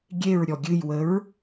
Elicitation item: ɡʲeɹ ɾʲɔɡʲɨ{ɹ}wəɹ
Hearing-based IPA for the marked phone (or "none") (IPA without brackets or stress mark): j